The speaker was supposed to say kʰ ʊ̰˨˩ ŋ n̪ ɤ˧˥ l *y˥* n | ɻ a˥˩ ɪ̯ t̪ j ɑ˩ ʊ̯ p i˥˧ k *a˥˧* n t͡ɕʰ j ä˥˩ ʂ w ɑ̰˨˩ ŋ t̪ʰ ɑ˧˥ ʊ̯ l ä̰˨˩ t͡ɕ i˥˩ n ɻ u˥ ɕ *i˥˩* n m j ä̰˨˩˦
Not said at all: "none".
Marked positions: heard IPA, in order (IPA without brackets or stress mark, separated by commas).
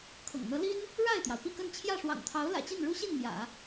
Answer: i˥, ə˥˧, i˥˩